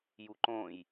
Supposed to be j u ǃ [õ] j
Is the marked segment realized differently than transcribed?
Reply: no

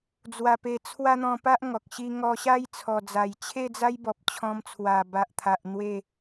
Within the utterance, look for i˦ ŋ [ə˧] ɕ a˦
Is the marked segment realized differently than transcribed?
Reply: yes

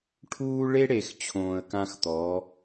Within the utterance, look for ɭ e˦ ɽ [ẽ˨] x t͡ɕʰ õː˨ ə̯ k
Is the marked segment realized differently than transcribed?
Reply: yes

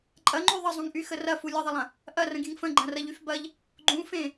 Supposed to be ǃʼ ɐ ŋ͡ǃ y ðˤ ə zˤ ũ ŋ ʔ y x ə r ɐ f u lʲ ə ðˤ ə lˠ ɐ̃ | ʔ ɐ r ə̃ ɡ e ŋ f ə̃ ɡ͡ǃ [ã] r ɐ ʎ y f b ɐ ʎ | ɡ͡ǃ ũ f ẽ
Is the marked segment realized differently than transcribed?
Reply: yes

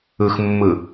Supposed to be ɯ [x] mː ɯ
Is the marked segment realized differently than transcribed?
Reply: no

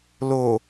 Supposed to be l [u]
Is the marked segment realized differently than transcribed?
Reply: yes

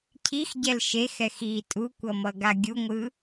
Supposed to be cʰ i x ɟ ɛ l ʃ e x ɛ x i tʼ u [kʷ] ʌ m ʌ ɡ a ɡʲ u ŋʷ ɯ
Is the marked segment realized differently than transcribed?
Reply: no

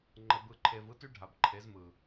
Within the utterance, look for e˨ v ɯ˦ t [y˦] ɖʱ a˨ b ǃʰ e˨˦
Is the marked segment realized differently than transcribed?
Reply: no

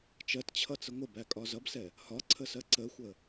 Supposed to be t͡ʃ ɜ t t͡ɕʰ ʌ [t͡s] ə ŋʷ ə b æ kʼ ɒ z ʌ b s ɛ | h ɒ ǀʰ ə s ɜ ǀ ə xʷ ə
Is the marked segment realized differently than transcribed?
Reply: no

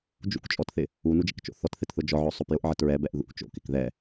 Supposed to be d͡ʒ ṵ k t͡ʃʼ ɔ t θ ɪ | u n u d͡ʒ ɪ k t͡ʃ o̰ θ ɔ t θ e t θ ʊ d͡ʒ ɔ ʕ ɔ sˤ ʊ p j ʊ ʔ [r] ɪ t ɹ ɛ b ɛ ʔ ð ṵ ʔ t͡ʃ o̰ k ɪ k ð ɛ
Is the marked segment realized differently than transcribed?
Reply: yes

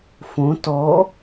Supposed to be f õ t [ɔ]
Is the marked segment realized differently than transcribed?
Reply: no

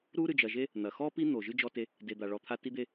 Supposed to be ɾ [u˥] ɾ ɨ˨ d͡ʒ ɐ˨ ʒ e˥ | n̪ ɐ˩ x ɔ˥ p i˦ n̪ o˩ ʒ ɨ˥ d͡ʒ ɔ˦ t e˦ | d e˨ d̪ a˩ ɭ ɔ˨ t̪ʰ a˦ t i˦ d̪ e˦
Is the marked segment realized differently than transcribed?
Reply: no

